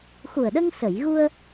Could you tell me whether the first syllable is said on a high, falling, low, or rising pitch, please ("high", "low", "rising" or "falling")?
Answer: low